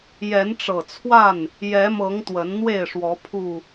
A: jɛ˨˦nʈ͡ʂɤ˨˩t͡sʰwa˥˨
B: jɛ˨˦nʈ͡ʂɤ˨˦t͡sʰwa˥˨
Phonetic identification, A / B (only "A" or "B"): A